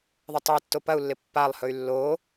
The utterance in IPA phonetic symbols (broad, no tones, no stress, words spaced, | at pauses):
ðˤɪtˤɵi̯tːo pɐu̯lːɪ pːalˠhɵy̯ lːo